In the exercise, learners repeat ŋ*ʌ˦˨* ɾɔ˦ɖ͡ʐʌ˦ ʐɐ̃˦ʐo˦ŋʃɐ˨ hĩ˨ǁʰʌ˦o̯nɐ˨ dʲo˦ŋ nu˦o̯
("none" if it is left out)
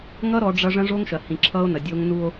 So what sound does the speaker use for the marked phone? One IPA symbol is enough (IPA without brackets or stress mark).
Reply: ʌ˦